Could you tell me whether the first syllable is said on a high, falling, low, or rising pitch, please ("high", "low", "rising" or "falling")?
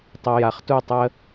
low